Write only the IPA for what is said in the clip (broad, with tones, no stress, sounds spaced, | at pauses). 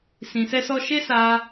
s ĩ˨ s ɛ˧ s ɔ˧ ʃ e˦ s a˦